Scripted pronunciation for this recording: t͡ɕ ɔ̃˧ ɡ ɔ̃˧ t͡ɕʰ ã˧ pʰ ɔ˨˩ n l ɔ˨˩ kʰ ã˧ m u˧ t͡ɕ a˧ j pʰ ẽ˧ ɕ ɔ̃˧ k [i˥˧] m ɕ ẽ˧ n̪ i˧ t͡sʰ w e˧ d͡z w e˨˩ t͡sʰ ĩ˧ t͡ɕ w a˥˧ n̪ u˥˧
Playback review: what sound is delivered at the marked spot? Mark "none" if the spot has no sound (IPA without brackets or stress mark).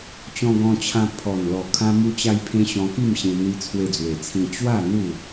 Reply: i˥˧